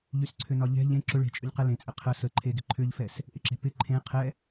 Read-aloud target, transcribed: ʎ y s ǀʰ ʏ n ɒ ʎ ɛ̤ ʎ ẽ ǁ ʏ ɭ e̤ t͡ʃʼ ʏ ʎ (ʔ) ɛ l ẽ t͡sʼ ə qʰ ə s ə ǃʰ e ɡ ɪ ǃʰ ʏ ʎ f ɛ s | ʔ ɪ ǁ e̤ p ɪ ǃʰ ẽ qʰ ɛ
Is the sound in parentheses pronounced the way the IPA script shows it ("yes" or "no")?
no